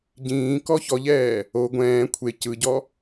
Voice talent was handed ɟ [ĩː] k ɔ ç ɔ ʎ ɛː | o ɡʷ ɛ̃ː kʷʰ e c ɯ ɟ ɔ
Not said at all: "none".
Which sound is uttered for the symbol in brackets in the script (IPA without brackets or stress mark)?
ĩː